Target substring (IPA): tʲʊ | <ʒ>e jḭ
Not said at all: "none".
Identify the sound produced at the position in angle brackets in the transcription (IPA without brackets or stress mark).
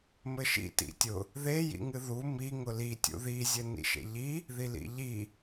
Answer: ð